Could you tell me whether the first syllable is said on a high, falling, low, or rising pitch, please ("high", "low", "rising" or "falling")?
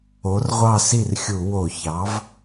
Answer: rising